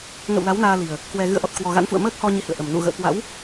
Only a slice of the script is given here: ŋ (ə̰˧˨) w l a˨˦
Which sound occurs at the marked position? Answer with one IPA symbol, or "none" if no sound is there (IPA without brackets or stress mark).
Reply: ə̰˧˨